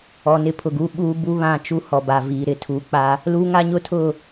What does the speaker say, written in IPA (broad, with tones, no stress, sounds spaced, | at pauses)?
ɔ˨ n ɪ˦˨ pʰ ʊ˨ ɡ uː˦ ɓ uː˦ b u˦ β ã˦˨ t͡ʃ u˦ h ɔ˨ b a˨ v iː˨ ɾ ɪ˦ tʰ uː˨ k͡p a˦ | l uː˦ ŋ a˦ ɲ ʊ˦ tʰ ʊ˦˨